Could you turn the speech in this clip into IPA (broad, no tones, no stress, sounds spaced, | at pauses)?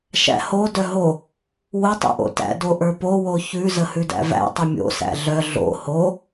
ʃ æ̰ h o d œ ɦ o | w o tˤ o̰ ʔ o̰ t æ̰ d o ʔ ə˞ p o w o ç ʉ z ə h ʉ d æ̰ v æ̰ tˤ ə mʲ o̰ s æ̰ ɮ œ ɮ o̰ h o